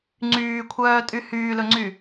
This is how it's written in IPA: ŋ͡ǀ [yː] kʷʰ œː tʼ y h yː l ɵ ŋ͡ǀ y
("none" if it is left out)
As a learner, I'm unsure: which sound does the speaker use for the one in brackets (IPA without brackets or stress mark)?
yː